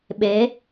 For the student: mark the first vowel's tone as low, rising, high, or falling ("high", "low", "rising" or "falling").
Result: rising